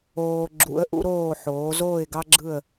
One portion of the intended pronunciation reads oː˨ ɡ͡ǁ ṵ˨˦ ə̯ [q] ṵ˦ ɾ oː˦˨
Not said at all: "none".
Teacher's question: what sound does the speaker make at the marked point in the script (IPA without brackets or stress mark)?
ʔ